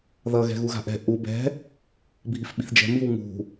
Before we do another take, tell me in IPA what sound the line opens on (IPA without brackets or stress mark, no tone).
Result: ð